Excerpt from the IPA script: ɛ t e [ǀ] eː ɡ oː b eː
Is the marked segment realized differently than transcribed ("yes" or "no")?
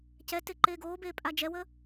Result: yes